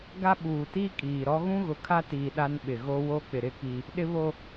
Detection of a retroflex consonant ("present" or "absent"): absent